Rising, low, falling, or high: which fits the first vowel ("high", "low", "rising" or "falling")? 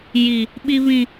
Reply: low